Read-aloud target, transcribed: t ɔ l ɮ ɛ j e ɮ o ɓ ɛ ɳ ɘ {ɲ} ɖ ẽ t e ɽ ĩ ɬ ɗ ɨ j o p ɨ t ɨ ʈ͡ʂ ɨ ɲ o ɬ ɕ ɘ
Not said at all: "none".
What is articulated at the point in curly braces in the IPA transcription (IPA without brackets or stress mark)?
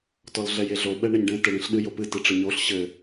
ɲ